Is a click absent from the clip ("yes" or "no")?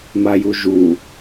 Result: yes